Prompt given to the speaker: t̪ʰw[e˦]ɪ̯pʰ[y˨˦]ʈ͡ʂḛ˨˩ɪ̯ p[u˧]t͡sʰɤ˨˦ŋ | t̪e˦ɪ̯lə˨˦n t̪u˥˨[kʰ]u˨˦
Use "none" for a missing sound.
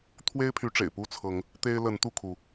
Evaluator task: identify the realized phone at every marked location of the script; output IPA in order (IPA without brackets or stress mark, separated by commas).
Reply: e˦, y˨˦, u˥˨, kʰ